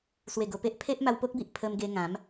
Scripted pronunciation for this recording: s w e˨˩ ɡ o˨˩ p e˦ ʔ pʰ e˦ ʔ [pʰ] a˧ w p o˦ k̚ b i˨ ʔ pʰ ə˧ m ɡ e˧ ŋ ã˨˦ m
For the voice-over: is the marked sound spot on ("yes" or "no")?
no